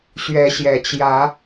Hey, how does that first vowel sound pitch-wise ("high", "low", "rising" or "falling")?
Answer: rising